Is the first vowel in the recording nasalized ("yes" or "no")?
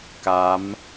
no